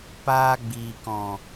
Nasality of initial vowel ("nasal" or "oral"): oral